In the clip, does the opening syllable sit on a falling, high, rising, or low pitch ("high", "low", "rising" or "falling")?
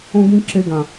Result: high